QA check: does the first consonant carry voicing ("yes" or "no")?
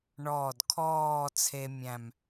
yes